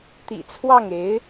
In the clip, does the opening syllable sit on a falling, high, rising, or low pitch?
low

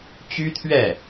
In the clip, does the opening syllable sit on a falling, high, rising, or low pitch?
high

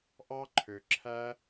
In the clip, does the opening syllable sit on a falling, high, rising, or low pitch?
high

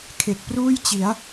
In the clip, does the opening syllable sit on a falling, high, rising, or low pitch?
low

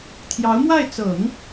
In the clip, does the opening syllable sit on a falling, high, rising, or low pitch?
rising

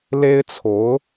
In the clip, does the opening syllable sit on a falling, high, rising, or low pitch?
high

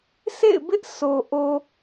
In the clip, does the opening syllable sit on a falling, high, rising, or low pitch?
falling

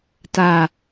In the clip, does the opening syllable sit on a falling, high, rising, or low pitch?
low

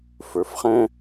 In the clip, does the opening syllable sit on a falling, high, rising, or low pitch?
rising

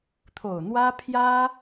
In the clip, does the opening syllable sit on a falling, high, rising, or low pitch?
low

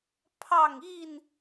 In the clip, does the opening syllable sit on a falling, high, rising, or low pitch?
falling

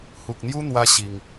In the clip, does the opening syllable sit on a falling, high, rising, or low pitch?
low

